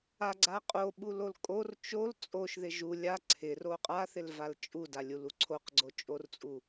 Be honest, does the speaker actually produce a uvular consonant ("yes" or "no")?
yes